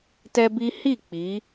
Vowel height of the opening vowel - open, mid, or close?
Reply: mid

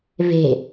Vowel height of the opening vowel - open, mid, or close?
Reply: mid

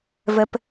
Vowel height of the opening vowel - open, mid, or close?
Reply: mid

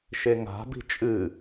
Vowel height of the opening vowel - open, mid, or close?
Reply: mid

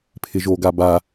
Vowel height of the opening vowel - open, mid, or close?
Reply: close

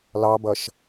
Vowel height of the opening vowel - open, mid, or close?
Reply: open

